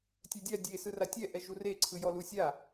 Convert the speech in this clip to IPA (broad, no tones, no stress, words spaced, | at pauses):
tʲɛdʲa dʲe sɯratʲɛ ʔɛʒure ǀʰɯjɔlusʲa